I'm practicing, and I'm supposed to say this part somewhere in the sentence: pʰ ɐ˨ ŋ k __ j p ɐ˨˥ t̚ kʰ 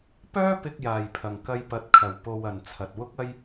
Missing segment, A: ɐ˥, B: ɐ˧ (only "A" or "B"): B